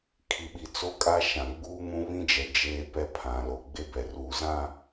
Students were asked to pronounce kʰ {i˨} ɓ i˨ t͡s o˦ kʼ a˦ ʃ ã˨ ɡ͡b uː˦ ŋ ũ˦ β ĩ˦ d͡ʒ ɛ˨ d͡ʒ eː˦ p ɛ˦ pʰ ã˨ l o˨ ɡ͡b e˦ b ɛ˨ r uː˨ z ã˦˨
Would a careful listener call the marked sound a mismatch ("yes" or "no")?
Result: no